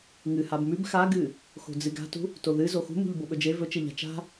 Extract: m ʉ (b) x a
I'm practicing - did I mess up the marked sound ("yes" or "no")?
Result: no